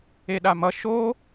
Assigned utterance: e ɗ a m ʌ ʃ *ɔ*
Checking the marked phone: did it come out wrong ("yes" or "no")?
yes